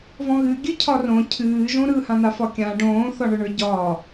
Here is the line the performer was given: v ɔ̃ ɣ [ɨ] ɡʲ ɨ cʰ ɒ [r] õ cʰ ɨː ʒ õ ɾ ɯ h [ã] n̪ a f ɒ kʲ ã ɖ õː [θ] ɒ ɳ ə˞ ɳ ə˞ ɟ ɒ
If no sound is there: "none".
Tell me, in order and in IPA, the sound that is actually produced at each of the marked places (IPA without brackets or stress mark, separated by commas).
ɨ, r, ã, θ